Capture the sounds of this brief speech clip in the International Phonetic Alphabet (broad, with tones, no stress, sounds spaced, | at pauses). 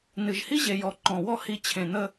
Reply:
n ɨ˨ ʒ h i˦ ʑ e˨ j ɔ˨ ǃ ɔ̃˨ w ɔ˦ h i˦ t͡ɕʰ ẽ˨ n̪ ə˦